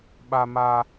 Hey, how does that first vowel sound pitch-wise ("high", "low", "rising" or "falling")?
high